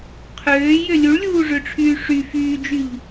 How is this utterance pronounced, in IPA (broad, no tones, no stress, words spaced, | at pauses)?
qʰøːjø lʲuɭlʲuːʐøʈ͡ʂʰyː ʂy fyːd͡ʒyʎ